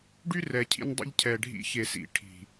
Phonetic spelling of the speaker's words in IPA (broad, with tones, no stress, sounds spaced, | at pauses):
ɖ y˦ r ɛ˨ cʰ ḭ˧ n dˤ ḭ˧ ʎ cʰ ɛ˨ ɖʱ ḭ˧ ç e˨ s ḭ˨ ʈʰ i̤˨